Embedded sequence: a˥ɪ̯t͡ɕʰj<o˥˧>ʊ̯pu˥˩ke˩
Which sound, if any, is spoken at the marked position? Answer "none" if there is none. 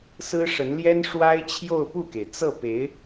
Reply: o˥˧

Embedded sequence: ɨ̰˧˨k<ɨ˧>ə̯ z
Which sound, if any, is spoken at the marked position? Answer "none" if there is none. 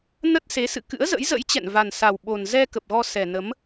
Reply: ɨ̰˧˥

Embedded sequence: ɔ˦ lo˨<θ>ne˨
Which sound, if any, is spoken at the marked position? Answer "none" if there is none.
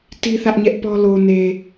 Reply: none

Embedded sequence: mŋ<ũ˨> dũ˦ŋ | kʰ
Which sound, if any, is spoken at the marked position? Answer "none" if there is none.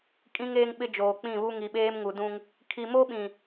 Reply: u˨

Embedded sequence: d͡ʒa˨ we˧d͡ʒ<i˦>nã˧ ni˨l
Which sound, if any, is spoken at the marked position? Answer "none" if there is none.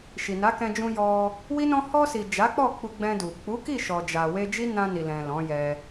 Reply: i˦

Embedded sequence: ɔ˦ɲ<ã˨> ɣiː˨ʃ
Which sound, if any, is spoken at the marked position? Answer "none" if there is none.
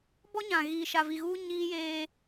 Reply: ã˨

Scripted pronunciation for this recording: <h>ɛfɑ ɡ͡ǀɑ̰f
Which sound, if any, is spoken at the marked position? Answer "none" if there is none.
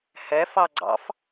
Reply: h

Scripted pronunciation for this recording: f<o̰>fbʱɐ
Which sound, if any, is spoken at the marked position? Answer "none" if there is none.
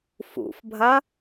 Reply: ṵ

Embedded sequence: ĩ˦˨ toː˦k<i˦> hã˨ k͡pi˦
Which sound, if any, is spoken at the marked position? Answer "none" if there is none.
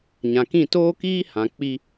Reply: iː˦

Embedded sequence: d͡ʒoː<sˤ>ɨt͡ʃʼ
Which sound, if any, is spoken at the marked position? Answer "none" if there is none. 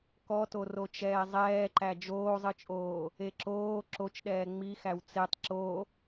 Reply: zˤ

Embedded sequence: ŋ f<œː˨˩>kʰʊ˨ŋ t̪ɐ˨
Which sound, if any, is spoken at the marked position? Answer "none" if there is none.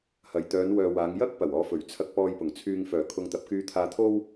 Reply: œː˨˩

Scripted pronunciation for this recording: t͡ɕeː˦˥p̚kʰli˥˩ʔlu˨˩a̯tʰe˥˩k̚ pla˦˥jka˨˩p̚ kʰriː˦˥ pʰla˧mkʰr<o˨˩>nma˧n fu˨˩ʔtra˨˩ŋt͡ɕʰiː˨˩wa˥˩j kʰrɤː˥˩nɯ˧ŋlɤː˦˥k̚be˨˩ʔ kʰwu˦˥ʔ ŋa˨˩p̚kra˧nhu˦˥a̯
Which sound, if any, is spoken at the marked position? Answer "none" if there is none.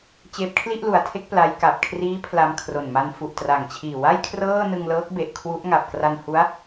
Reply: o˨˩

